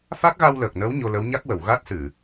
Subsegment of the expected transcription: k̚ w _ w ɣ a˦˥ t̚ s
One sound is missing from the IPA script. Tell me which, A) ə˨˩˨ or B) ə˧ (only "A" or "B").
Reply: A